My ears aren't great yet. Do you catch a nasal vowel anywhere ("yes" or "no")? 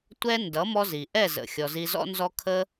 no